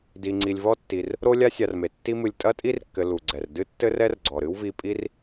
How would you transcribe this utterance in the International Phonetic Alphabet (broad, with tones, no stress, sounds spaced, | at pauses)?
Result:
d i˨ ŋ͡ǀ i˨ lʲ v ɔ˥ tː i˨ r | ɾ o˥ lʲ a˥ sʲ a˨ r m e˩ tː i˦ m ɨ˨ lʲ tʼ ɐ˥ tʼ i˥ r kː ɘ˨ l u˩ ɡ͡ǀ ɛ˩ r d ɨ˥ tː ɘ˥ r ɛ˥ r ɡ͡ǀ ɔ˩ ɾ ɨ˥ w v i˦ pʼ i˥ r